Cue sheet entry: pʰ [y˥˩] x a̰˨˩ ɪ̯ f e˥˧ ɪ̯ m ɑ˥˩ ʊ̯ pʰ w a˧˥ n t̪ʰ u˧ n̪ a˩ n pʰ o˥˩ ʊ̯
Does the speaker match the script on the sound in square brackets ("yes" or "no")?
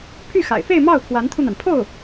yes